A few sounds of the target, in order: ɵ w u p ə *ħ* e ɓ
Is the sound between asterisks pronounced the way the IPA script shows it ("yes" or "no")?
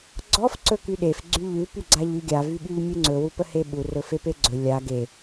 no